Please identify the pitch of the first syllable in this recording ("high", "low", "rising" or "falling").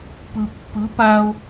low